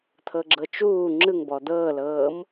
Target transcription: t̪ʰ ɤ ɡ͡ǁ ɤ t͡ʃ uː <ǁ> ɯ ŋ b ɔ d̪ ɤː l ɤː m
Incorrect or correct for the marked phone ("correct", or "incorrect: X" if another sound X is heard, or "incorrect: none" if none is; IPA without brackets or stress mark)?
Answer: incorrect: ŋ͡ǁ